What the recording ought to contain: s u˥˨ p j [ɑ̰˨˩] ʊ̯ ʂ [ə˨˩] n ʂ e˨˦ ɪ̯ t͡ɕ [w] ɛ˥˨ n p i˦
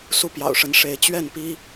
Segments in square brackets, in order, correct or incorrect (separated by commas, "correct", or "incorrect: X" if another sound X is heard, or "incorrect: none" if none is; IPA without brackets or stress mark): correct, incorrect: ə˨˦, incorrect: ɥ